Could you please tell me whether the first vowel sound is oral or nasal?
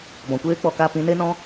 nasal